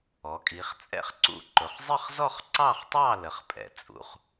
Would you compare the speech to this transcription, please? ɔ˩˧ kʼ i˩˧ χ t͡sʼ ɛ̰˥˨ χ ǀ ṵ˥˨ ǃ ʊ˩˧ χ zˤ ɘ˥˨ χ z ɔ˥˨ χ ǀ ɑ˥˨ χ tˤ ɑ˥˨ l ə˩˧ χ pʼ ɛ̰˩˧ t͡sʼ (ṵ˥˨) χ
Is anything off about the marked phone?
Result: yes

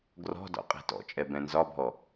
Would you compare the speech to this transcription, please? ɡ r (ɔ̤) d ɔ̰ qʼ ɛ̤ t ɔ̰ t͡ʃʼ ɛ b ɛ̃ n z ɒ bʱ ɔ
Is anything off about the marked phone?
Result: no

